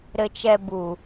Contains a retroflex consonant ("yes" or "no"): no